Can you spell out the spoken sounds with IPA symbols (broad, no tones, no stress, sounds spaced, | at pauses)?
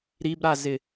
ɾ i b ɾ a z ɪ